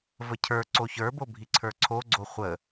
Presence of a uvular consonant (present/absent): present